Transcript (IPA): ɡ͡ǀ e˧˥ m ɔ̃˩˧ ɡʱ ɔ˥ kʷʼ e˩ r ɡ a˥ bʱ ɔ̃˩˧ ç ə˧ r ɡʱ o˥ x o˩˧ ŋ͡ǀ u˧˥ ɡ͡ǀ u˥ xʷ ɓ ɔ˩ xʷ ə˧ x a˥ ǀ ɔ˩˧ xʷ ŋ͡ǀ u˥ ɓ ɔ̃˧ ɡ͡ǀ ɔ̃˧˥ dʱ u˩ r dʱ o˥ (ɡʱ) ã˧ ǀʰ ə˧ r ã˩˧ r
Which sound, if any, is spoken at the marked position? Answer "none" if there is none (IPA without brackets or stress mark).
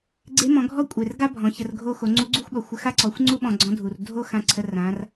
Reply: x